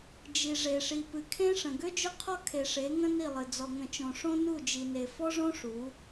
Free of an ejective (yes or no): yes